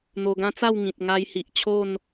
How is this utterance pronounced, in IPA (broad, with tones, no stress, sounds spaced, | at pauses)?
n̪ o˧ ɡ ã˦ t͡s a˥˧ w ŋ ĩ˨ t̚ ŋ a˧ j h i˨ ʔ t͡ɕʰ o˥˧ n